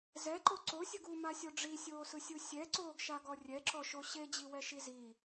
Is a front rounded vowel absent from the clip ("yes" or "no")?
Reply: yes